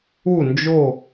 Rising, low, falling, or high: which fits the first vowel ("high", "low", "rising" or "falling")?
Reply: falling